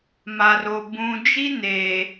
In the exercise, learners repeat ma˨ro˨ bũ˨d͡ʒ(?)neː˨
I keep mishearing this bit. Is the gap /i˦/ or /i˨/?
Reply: i˦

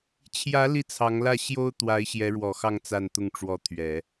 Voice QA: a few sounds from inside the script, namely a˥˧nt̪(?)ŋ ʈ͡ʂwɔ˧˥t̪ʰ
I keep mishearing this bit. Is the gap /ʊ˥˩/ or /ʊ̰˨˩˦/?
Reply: ʊ˥˩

